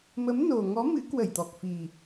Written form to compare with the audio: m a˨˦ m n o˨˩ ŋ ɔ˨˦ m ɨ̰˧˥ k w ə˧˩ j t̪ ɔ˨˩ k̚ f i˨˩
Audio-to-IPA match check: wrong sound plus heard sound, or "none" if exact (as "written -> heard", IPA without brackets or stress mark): a˨˦ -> ə˨˦